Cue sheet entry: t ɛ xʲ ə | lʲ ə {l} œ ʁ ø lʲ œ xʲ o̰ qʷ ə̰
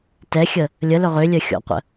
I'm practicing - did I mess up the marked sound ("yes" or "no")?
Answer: no